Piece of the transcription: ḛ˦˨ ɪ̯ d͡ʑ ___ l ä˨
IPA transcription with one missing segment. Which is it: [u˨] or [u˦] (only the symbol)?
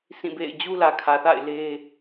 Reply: u˦